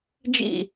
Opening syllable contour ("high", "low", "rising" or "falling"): falling